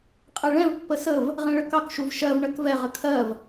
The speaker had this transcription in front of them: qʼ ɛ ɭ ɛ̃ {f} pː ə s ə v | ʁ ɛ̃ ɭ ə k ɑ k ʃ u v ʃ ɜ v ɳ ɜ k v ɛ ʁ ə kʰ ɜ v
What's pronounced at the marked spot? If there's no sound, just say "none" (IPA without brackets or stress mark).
v